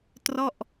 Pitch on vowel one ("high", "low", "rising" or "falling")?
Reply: falling